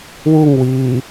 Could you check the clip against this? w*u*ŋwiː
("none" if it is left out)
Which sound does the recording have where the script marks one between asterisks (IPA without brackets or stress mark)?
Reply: u